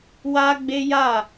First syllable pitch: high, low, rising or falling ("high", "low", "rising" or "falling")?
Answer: high